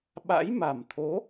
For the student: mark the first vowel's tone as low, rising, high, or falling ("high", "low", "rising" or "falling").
rising